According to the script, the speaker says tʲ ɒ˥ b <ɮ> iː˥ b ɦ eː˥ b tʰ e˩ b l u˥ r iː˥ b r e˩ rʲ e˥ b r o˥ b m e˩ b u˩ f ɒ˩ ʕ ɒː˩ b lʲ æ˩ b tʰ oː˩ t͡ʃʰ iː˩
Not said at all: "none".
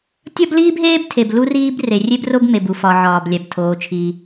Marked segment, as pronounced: l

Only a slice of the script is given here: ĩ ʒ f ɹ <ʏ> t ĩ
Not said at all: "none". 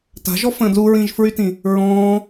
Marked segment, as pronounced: y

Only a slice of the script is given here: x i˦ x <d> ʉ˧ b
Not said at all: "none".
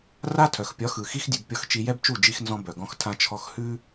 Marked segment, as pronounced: dʲ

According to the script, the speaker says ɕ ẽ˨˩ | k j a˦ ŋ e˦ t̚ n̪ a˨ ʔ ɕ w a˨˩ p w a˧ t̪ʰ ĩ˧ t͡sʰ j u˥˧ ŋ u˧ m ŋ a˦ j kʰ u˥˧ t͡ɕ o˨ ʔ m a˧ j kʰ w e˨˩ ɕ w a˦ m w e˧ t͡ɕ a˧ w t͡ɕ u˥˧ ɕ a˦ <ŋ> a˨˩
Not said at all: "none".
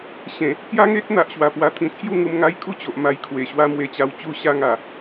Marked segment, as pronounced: ŋ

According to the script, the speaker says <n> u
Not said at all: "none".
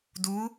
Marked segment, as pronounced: d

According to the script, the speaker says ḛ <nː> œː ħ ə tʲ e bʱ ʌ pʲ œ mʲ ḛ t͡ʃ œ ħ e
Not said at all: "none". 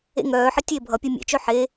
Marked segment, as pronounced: ŋ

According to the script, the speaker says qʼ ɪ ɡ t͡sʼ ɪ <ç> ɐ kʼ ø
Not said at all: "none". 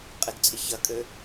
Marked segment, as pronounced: ç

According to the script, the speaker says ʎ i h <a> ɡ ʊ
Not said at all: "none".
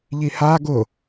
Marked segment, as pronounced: a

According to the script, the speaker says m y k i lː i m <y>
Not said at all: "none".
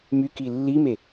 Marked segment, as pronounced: e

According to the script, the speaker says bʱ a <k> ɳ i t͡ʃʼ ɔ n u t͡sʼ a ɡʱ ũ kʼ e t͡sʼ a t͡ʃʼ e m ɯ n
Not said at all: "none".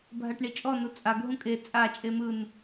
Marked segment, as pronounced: ʈ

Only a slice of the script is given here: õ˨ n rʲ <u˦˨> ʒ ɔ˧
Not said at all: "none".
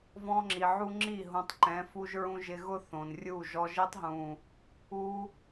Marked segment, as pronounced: u˦˨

